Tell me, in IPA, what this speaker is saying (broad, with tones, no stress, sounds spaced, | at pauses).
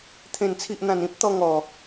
t̪ʰ ẽ˨˩ n t͡sʰ i˨ ʔ n̪ ã˨˩ n ĩ˦ p̚ t̪ ɔ˧ ŋ ɔ˨˩